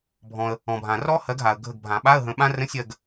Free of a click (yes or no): yes